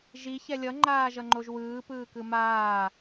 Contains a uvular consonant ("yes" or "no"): no